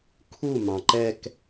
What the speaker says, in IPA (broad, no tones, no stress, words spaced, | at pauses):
kʰu mɑ̃ǃɛk